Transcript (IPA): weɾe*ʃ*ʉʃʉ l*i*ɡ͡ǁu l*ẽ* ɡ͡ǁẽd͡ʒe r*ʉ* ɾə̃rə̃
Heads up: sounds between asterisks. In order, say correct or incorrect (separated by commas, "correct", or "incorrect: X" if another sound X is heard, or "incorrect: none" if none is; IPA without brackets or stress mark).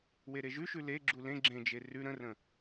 incorrect: ʒ, incorrect: e, correct, correct